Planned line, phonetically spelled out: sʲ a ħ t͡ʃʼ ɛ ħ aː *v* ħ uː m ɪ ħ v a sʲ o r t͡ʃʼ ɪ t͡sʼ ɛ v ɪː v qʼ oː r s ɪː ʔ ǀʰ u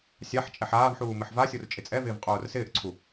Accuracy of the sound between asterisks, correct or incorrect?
correct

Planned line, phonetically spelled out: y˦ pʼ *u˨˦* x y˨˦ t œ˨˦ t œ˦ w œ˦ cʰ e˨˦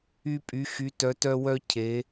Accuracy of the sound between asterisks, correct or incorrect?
incorrect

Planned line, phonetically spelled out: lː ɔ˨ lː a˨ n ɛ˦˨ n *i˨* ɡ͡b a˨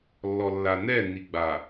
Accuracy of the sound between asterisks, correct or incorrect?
correct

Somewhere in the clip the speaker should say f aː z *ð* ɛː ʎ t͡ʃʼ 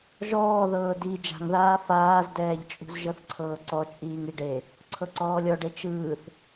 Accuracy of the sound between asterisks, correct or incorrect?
incorrect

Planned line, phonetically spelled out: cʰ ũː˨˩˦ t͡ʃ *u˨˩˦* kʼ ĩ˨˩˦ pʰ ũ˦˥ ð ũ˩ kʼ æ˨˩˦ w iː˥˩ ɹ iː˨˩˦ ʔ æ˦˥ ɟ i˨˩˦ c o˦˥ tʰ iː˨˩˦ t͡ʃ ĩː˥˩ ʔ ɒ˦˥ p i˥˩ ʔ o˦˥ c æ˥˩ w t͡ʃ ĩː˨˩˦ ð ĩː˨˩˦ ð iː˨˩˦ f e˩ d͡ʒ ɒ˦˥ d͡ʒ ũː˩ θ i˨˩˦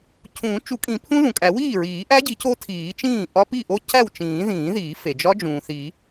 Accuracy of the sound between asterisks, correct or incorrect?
correct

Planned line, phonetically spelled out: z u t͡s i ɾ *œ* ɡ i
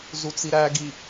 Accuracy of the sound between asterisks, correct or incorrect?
incorrect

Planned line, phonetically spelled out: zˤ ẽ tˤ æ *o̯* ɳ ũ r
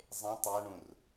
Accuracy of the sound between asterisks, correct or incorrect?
incorrect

